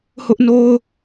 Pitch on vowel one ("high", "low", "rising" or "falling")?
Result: high